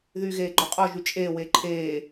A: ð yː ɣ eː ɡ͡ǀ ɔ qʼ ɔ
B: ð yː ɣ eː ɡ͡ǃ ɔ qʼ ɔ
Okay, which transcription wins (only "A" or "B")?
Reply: B